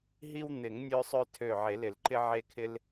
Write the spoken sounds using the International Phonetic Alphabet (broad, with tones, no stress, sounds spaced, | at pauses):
ɦ i˦ w n̪ ɪ˨˩˦ ŋ nʲ ø˦ sˤ ø˦ tʰ ø˧˩ ʕ e˨˩˦ l ɪ˨˩˦ l ǃ ɪ˦ ʕ e˦ kʰ ɪ˦ l